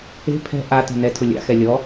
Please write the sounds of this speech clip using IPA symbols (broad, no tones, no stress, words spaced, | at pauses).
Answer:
e̤ pʰɛ̤ ʔa tɛ̤nɛtʰʊ lʲa̰xɛ lʲɔ